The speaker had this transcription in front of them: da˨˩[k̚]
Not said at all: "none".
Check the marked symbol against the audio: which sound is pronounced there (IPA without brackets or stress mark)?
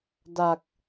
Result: k̚